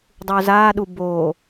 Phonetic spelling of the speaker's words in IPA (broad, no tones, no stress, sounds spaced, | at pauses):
dˤ u z a ɗ u b o